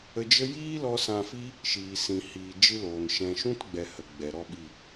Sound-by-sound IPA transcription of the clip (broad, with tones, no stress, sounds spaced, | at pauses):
ə˧ d͡ʒ ə˦ j iː˦ l ɔ˧ s ã˧ f i˦ | ʃ iː˨ s ĩ˨ h iː˨ d͡ʒ ɨ˦ l oː˨ n ʃ ɛ̃˧ ʃ ũ˦ t ɡ͡b ɛ˨ h ə˨ ɡ͡b ɛ˨ ɾ ɔ˦ ɓ i˦˨